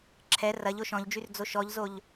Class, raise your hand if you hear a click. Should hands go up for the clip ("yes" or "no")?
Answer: yes